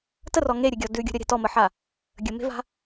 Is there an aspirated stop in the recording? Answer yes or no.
no